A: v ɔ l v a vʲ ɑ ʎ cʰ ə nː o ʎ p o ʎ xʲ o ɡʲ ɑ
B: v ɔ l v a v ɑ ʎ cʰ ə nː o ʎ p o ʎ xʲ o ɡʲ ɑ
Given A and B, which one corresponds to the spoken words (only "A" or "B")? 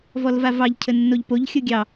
B